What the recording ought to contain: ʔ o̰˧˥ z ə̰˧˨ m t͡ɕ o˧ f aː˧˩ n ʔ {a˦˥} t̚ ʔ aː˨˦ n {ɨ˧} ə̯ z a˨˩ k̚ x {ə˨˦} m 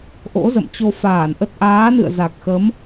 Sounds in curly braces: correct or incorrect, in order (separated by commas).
incorrect, incorrect, correct